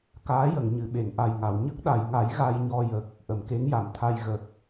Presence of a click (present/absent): absent